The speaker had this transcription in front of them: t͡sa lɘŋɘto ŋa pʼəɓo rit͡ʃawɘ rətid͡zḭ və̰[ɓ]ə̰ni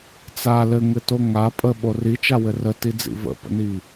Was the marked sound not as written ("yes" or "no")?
yes